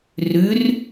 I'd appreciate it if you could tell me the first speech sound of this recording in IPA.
r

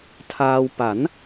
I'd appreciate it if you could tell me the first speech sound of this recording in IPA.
tʰ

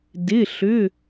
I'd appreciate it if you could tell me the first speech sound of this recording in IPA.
d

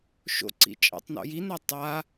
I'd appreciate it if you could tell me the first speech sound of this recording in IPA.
ʃ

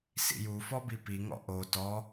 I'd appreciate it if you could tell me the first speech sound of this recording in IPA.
s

